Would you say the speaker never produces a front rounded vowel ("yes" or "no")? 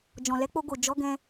yes